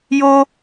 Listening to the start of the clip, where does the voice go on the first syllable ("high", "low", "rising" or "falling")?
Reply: high